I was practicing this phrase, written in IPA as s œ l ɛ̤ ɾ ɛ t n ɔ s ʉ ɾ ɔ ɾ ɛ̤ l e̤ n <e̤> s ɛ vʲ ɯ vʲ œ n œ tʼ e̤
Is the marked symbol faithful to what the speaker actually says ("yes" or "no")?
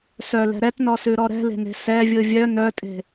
yes